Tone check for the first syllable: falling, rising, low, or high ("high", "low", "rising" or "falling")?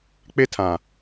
high